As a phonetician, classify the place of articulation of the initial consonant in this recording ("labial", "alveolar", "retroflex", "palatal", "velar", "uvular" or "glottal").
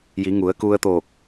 palatal